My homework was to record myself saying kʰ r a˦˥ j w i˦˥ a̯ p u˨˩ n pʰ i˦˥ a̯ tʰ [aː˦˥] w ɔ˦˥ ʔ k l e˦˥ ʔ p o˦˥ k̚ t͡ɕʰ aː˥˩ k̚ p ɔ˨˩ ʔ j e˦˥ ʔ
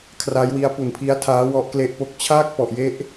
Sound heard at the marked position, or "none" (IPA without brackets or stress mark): aː˦˥